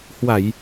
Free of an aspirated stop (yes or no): yes